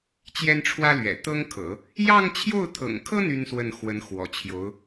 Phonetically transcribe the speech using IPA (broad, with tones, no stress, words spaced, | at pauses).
t͡ɕjɛ˥nʈ͡ʂʰwä˥lɥɛ̰˨˩ t̪ɤ˥ŋkʰɤ̰˨˩˦ | jɑ˥˧ŋt͡ɕʰjo˥˩ʊ̯t̪ʰɤ̰˨˩ŋkʰɤ˥ n̪y˥nswə˥˩n xwə˧˥nxwɔ̰˨˩t͡ɕʰjo˧˥ʊ̯